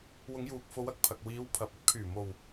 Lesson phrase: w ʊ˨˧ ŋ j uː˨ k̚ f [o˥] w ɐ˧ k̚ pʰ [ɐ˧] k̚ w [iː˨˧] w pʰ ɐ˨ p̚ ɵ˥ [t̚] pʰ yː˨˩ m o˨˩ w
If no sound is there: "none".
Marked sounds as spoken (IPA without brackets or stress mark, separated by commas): o˨˧, ɐ˨, iː˨˧, t̚